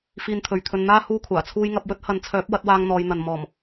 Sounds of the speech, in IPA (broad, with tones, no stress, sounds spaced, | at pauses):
f iː˧ n t̪ʰ ɵ˨ ɥ t̪ʰ ɵ˧ n n̪ aː˥ h uː˥ kʷʰ aː˨˩ t͡sʰ uː˥ j ŋ ɐ˨˥ p̚ w ɵ˥ t̚ h ɐ˨˧ n t͡sʰ œː˨˥ p̚ w ɐ˨˥ t̚ w aː˧ ŋ n̪ ɔː˨˧ j n̪ ɐ˨ n m ɔː˨˩ m